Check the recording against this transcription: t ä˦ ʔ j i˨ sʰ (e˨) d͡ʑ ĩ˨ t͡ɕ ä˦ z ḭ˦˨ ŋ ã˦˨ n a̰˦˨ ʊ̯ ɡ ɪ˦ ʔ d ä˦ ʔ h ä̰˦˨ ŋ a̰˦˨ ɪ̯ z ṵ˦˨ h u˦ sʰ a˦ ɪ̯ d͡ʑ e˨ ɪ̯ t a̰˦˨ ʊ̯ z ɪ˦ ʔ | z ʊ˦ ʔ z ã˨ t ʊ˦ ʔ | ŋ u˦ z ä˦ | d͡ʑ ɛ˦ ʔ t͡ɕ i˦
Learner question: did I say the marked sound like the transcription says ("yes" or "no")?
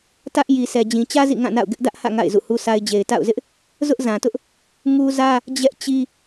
no